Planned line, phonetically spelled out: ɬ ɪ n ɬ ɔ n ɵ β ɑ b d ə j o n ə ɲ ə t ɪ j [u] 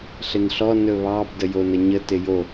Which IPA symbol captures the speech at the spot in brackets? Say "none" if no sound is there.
o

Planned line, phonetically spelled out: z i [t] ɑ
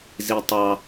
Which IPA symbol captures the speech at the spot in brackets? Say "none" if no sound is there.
tˤ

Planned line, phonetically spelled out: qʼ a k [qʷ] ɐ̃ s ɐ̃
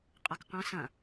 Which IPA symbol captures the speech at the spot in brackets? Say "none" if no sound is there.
qʷ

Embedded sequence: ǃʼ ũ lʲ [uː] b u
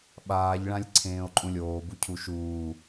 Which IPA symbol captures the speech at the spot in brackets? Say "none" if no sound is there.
oː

